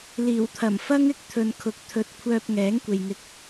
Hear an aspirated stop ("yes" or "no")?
yes